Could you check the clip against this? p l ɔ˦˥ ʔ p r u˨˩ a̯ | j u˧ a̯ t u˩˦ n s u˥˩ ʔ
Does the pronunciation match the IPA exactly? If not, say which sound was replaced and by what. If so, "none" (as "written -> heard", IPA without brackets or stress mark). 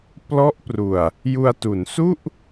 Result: none